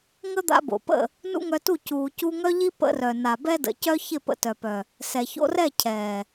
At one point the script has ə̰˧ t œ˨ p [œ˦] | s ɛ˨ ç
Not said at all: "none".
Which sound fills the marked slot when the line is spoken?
œ˨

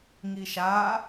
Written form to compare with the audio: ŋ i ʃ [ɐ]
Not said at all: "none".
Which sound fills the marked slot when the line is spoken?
a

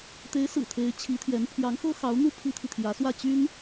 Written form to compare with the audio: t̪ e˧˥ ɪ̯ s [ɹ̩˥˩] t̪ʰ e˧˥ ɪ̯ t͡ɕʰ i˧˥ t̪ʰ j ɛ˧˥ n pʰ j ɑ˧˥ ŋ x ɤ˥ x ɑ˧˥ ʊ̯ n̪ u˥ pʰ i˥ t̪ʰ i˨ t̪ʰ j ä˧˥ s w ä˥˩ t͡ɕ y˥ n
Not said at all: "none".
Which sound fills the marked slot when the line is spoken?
ɹ̩˨˩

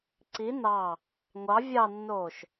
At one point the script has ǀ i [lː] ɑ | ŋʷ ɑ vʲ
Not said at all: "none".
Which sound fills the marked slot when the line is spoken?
n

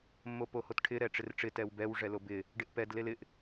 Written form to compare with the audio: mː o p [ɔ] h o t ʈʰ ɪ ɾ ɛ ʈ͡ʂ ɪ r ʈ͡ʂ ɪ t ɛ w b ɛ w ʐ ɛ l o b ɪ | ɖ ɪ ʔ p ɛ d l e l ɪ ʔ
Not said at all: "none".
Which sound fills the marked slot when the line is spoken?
o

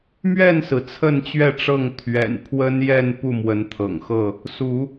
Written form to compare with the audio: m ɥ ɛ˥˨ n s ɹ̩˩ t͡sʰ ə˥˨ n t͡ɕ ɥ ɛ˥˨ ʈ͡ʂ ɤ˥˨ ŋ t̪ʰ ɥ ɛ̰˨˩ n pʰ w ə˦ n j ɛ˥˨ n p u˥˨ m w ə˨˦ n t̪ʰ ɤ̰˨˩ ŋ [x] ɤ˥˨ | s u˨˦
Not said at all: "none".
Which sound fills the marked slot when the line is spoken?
x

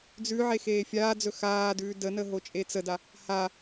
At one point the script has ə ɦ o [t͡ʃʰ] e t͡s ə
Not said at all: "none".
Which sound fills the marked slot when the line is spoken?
t͡ʃʼ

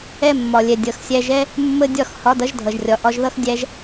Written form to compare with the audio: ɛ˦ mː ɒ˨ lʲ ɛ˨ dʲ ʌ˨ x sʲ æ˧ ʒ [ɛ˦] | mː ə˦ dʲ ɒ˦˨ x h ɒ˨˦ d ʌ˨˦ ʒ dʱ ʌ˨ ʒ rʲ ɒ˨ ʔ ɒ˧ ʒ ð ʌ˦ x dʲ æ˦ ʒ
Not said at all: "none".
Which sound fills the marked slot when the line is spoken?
ɛ˦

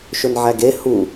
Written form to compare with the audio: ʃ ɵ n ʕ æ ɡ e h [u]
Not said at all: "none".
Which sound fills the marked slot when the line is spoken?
u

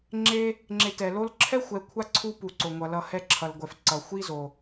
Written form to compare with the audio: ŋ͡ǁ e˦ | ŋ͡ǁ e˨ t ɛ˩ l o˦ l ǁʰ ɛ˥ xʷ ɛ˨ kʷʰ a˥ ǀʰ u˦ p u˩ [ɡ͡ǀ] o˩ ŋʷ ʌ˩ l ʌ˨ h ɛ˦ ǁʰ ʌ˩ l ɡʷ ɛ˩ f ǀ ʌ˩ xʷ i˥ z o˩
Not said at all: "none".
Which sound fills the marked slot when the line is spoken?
ǀ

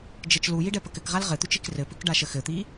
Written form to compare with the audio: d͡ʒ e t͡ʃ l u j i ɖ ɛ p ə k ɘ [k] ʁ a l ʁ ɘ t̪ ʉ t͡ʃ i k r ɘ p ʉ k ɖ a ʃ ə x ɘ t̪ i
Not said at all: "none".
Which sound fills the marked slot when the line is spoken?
k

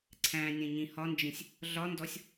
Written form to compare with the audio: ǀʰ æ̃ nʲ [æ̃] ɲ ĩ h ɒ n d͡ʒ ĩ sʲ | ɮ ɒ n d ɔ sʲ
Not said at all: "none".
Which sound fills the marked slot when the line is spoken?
ɛ̃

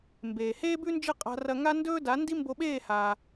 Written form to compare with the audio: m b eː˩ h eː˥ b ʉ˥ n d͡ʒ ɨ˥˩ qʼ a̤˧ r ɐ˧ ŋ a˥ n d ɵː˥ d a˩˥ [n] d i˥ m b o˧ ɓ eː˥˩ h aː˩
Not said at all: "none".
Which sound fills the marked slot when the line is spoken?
n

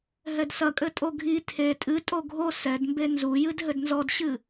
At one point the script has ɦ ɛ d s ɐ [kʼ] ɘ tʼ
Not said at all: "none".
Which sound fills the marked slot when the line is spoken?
kʼ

